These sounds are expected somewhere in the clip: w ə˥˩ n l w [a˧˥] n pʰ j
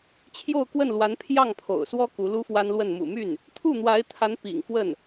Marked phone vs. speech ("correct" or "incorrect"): correct